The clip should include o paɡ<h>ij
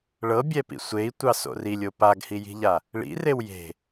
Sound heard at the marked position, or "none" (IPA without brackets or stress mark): h